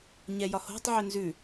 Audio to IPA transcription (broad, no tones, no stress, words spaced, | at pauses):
ɲɛjɒho̤tˤ ʕʏnzʉ